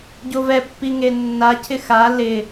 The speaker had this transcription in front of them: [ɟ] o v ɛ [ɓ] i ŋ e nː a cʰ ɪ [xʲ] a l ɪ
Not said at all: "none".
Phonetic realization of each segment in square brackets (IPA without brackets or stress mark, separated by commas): ɟ, pː, x